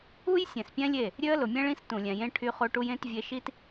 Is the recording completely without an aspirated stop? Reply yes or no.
no